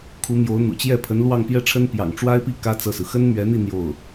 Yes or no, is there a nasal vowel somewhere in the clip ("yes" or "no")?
no